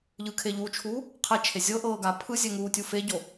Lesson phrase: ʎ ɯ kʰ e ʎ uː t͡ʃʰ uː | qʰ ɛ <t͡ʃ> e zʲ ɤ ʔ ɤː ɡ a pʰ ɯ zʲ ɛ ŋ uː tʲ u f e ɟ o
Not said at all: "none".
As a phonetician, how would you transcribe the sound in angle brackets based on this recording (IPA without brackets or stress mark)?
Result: t͡ʃʰ